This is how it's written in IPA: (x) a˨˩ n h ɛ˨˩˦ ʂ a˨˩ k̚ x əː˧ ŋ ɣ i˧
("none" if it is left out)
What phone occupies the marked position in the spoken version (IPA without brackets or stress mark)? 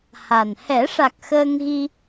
h